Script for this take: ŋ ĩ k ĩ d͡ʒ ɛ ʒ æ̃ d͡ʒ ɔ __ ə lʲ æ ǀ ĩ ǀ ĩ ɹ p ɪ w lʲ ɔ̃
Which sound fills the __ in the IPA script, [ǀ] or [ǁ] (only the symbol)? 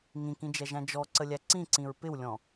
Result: ǀ